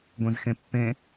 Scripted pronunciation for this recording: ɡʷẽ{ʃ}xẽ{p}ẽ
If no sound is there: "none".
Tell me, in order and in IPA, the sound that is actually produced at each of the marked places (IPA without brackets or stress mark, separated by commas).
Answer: z, pː